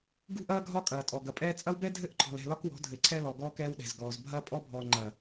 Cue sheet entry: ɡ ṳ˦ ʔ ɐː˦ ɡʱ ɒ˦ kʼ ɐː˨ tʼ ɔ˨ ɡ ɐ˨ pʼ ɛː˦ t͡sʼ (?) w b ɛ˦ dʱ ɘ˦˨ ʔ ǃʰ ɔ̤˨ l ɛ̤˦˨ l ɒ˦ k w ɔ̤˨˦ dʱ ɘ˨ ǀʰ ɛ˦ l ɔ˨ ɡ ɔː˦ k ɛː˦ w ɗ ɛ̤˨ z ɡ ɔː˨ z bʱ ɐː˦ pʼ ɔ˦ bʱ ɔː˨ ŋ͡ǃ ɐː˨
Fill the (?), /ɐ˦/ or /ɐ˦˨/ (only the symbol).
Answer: ɐ˦